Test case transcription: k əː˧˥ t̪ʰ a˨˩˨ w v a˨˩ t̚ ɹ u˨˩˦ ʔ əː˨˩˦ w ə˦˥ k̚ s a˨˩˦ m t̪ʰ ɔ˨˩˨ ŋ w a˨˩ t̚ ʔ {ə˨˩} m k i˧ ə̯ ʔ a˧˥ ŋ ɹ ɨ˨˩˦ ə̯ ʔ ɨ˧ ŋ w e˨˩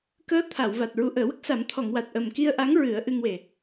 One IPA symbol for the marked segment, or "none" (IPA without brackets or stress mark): ə˨˩